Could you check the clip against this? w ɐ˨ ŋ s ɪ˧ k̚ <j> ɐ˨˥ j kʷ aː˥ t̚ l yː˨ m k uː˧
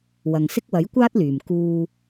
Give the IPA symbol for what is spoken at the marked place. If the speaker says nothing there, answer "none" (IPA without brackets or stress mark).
w